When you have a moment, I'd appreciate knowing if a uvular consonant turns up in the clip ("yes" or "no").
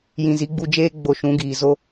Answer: no